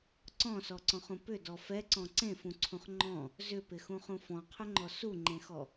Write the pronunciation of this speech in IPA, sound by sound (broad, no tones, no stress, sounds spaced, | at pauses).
ǀ ɔ̃ s ɔ ǀ ɔ̃ χ ũ p ʏ d ɔ f ɛ ǀ ɔ̃ ǀ ẽ f ũ ǀʰ ũ χ ŋ͡ǃ ɔ̃ | z ʏ p ɪ x ũ χ ũ f ɔ̃ qʰ ʏ ŋ͡ǃ ɔ s u ŋ͡ǃ ẽ x ɔ